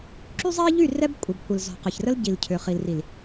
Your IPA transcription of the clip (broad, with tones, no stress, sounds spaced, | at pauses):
ǁ y˦ zˤ ɛ˦ e̯ ʎ y˦˨ r ɛ˦ b kʷʼ ə˨ b kʷ ə˨ l z ɔ̤˨ q ə˨ ç r ə˦ l ɟ i˨ l cʰ ʏ˨ χ i˨ l r i˨ l